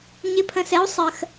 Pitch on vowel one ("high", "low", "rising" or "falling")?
rising